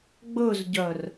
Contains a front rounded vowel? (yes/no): yes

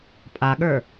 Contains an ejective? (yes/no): yes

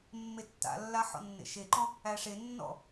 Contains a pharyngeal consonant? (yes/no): yes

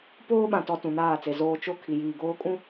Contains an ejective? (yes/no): yes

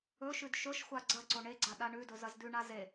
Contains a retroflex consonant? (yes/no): yes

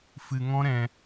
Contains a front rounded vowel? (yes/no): no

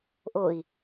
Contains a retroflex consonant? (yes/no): no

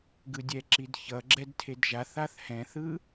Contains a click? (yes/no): yes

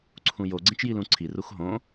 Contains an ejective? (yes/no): no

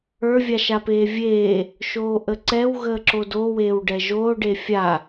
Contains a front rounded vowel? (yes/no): no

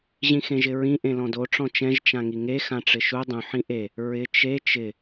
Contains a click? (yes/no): no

